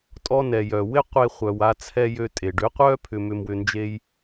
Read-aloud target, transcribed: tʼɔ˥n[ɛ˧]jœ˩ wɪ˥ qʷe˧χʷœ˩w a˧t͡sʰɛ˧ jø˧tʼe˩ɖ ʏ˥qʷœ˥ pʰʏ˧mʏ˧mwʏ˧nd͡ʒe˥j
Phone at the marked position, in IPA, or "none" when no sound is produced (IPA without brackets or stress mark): ɛ˩